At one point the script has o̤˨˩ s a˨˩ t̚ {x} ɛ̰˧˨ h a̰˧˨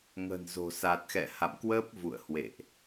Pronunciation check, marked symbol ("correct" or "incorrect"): correct